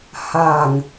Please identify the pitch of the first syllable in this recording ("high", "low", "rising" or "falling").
low